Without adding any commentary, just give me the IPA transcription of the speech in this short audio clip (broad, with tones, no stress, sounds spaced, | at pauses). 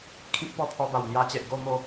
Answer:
kʰ ĩ˦ k̚ p ɔ˥˧ pʰ ɔ˧ b a˨˩ w n̪ j a˧ t͡ɕ e˨ ʔ ɡ o˥˧ m o˥˧